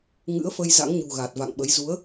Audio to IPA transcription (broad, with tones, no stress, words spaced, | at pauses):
ŋɨ̰˧˥ə̯fə˧jza̰˧˥ŋɲṳ˨˩ ɣa˨˩t̚va̰˧˨ŋɓə˨˦j zu˨˦ə̯